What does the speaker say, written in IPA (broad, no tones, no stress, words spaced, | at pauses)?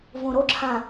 võɾoǁʰã